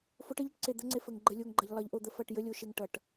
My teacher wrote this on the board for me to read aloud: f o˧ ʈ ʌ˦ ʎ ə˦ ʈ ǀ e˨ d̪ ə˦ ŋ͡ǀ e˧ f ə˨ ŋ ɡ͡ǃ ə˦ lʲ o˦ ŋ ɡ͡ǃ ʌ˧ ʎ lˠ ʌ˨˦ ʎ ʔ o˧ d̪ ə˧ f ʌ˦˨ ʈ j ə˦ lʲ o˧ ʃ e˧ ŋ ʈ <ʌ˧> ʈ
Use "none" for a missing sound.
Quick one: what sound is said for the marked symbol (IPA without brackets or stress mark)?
ʌ˨